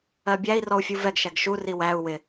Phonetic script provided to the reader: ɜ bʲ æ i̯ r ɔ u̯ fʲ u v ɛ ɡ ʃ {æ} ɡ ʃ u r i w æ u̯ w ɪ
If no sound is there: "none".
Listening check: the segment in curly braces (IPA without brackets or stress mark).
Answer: æ